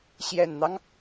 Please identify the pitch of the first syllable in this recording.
low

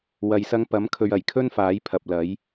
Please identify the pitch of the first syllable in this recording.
low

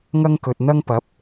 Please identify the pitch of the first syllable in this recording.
high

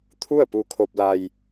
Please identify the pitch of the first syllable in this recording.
falling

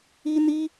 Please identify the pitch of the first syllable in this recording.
high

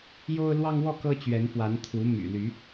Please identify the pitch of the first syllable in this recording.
high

